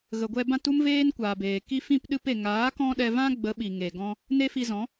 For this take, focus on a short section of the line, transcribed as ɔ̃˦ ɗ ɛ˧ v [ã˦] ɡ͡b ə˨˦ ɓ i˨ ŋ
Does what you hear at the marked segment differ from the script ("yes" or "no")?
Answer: no